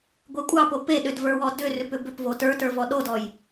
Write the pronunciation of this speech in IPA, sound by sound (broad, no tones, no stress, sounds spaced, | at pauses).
ɡʷ e kʷʼ ɑ p o p e ɗ ʏ d v ə˞ w ɔ d ʏ r ʏ p ʏ b ʏ p v o t ə˞ t ə˞ v ɔ ɗ o d ɔ j